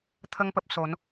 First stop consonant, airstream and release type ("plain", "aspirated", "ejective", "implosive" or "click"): aspirated